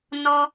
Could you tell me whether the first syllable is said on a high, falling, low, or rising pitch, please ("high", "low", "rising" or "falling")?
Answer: high